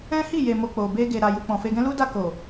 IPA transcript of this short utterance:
ɛ̃˦ h i˦˨ j e˨ m o˨ k͡p o˨ b e˧ ɡ e˨ ɾ a˨ j u˨ k͡p ɔ̃˨ f e˧ ɡ ɛ̃˦ l u˦ d a˦˨ k o˨

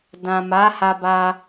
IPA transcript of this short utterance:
d ã˨ m a˨˦ h a˧ b a˧

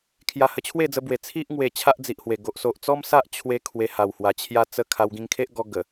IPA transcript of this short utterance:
kʰ j a˧ h ə˧ t͡ɕʰ w e˥˧ d͡z ə˧ b w e˨˩ t͡sʰ i˦ ʔ ŋ w e˨˩ t͡ɕʰ a˦ ʔ d͡z i˨ ʔ h w e˨˩ ɡ o˨ ʔ s o˨ ʔ t͡s ɔ˦ m s a˦ ʔ t͡ɕʰ w e˧ kʰ w e˧ h a˨˩ w h w a˨˩ t͡ɕʰ j a˦ t͡s ə˦ kʰ a˧ w ɡ ĩ˧ ŋ kʰ e˦ ʔ ɡ ɔ˧ ɡ ə˨˩

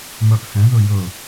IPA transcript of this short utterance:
m œ ʔ h ɛ̃ ð ɵ j ɵ

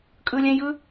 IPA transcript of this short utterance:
kʼ ɯ lʲ ɛ̃ j ɯ

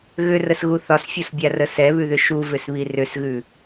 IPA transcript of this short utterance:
ɣ ʏ r ə s ɣ u θ ɒ s fʲ o s bʲ a r ə s ɛ β ʉ ð ʏ ʃ u v ʏ s β i r ʏ s ɣ ʉ

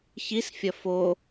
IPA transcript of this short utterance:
ç i s fʲ ɐ f o

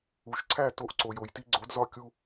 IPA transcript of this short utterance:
u˩ ʃ ǀʰ æ˥˨ t o˧ ʔ ǀ o˩ j o˩ j t i˧ ɡ͡ǀ o˩˥ d z ɒ˧ kʲ u˧

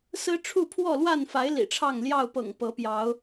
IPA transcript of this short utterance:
s ɹ̩˦ ʈ͡ʂʰ u˥˨ pʰ w ɔ˥˨ l w a˥˨ n f a˨˦ ɪ̯ l ḭ˨˩ ʈ͡ʂʰ ɑ˥˨ ŋ l j ɑ˥˨ ʊ̯ p ɤ̰˨˩ ŋ p ɤ˨˦ p j ɑ˨˦ ʊ̯

